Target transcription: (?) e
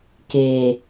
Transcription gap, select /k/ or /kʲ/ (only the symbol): k